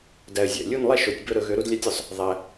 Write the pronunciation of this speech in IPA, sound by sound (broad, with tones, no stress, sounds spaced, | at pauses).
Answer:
d æ˨ ə̯ zʲ æ̰˨ lʲ u˥˨ n lˠ ɛ˥˨ ʃ o˨˩˦ tʲ b ɵ˦ ɾ ɵ˨˩˦ ɣ ø˩˥ ɾ u˩˥ d lʲ æ˦ tʲ ɵ˨ sˤ | ðˤ æ˨